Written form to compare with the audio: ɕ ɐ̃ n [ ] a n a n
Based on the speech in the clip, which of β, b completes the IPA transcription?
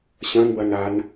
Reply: b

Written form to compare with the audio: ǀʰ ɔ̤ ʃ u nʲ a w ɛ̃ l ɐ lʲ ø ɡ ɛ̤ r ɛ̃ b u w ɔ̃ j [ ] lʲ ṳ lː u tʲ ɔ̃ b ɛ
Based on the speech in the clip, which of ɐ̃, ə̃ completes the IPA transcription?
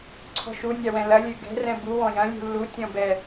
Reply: ɐ̃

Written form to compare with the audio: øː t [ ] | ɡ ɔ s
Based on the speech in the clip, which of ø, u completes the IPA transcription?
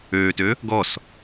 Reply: ø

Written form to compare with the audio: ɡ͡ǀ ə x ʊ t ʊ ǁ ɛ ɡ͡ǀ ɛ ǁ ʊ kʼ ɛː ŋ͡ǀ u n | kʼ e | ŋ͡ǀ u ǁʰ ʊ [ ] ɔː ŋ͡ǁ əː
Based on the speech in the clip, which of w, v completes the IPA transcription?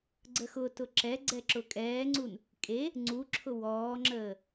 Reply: w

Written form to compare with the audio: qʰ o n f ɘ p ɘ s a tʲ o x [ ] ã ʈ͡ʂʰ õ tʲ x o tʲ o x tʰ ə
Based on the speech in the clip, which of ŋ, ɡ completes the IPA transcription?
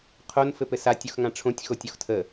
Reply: ŋ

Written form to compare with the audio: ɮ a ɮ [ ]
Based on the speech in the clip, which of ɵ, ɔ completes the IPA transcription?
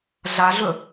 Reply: ɵ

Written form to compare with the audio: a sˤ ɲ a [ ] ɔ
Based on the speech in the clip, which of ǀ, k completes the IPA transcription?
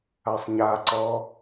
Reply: ǀ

